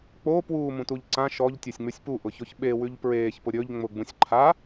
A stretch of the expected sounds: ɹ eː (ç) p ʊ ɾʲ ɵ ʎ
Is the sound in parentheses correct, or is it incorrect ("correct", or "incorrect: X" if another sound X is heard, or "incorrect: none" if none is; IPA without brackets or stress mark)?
correct